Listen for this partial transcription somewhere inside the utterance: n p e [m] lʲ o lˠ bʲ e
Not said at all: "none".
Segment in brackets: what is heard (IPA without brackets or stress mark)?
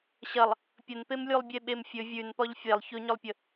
m